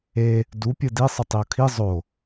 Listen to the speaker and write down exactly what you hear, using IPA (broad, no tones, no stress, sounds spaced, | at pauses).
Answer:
e | d u pʲ ɯ d i sˤ ɯ tˤ i o̯ kʰ i zˤ o